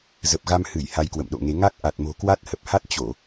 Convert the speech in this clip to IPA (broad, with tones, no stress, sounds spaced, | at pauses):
z ə˨˩ p̚ ɣ a˧ m h ɨ˧˩ j h a˧ j k w ə̰˧˨ m ɗ o̰˧˨ ŋ e˨˦ ŋ a˦˥ k̚ ʔ a˨˩ t̚ m o̤˨˩ k w a˦˥ t̚ h ə˨˩ p̚ h a˦˥ t̚ t͡ɕ o˧˩˨